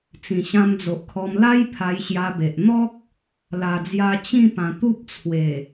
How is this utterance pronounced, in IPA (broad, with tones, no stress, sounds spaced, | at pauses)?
t͡s ĩ˨˩ ɕ ã˧ m d͡z o˨ ʔ kʰ ɔ˧ m l a˦ j pʰ a˧ j ɕ j a˧ b e˨ ʔ n̪ ɔ˦ k̚ | l a˨˩ d͡z j a˧ t͡ɕ ĩ˥˧ p ã˧ t̪ u˦ p̚ t͡sʰ w e˨˩